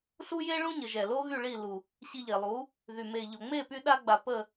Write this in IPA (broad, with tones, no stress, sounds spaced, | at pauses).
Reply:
ɬ u˦ j e˦ ɭ ũ˦ ɲ ə˨ ʒ ɛ˨ l o˦ ɣ y˦˨ ɭ i˦˨ l u˨ | ɕ i˧ ʎ e˨ lˠ u˨˦ | ð y˨ m e˨ ʎ o˨ ŋ͡m e˦˨ p y˧ ɗ a˧ ɡ͡b a˨ p ə˦˨